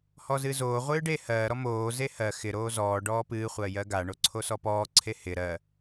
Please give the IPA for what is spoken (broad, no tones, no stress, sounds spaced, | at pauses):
h ɔ z ɨ z oː ʁʷ ɨː ɖ e h ɜː ɾ ɔ m oː z e h ɜ x ɪ ɾ oː z ɔː ɖ ɔː p ɨː χʷ ɜ j ɜ ɡ a ɳ o ǀʰ o s ɔ p ɔː ǀʰ e h ɪ ɾ ɜ